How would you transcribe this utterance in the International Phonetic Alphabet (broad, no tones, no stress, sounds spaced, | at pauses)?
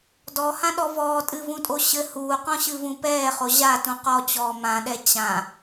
d ɔ h ã ɗ ɔ v ɔː tʼ ɨ v ũ tʼ o ɕ ɘ h uː q ɔ̃ ɕ ɨ v ũ p ɛː χ o ʑ a t ũ q ɔ t͡ɕ ɔː m ã ɗ ɛ t͡ɕ ã